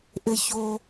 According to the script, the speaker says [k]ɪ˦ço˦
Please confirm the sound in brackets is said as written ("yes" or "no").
no